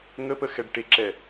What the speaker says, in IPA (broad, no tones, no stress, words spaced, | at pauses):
ŋəpəxɛɖ ʈeǁɛ